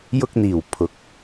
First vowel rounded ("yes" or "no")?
yes